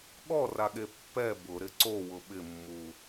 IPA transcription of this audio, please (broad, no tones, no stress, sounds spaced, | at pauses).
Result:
ɠ ɔ r a ɠ e pː ɛ b ʊ ɾ ɪ ǀ o w ʊ ɓ ɪ mː u